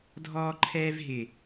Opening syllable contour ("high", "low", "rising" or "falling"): high